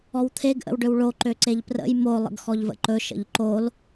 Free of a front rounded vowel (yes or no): no